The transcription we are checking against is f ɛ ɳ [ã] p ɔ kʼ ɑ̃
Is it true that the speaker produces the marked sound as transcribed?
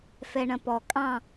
no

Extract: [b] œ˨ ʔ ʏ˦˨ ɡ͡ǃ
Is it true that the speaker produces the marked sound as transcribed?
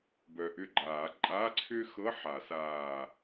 yes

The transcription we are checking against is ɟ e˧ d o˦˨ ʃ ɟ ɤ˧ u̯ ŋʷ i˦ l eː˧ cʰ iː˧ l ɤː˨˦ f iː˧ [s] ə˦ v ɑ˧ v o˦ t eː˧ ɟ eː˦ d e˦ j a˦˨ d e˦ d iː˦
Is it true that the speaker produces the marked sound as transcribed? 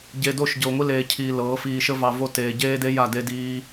no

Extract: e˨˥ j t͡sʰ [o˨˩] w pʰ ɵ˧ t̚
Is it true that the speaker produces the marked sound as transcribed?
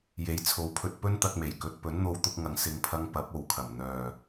no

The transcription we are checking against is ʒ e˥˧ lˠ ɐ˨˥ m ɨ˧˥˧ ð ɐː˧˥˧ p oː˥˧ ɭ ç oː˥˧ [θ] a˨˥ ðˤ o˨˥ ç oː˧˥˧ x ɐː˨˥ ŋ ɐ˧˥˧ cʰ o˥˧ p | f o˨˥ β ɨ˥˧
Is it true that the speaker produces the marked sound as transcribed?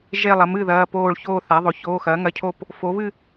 yes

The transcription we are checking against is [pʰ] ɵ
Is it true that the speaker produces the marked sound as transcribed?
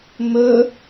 no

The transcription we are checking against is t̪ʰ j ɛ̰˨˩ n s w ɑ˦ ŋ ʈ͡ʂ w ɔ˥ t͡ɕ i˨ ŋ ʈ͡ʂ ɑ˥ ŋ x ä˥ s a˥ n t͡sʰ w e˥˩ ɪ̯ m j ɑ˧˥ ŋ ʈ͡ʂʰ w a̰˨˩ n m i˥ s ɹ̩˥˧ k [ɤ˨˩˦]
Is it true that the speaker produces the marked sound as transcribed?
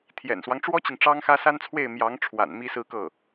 no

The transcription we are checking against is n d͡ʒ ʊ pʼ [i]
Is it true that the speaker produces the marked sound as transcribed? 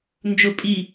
yes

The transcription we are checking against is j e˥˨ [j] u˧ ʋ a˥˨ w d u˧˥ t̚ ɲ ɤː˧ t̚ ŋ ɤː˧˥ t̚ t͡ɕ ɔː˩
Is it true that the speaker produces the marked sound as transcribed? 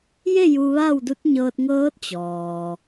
yes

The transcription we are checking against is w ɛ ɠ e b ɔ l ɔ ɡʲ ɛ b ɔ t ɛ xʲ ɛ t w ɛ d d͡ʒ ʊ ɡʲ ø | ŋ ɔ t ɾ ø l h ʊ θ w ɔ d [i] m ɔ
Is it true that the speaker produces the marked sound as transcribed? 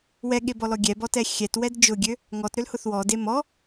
no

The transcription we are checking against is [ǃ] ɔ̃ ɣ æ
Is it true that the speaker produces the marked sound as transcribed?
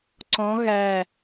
no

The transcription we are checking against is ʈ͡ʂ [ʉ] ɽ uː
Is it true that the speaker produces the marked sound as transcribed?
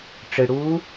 no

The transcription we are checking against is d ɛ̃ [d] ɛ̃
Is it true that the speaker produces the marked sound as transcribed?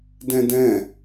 yes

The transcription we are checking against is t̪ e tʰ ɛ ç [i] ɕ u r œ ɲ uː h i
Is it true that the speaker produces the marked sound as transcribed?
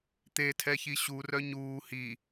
yes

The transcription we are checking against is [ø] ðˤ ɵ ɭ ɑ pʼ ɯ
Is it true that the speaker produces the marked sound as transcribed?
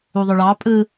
no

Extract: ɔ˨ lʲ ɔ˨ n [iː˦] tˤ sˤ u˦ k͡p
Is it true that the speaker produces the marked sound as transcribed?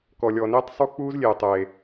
yes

